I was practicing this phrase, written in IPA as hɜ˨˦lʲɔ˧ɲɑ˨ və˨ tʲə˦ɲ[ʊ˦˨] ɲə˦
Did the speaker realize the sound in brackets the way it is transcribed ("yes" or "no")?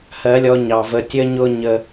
no